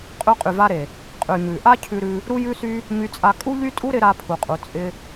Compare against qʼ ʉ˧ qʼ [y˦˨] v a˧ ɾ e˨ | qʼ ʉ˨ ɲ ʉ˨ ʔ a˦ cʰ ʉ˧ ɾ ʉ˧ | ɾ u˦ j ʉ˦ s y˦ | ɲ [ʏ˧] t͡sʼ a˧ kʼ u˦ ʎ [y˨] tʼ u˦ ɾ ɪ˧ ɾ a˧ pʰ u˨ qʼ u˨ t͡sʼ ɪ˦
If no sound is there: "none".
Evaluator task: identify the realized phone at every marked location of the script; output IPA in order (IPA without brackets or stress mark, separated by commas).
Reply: y˨, y˧, y˦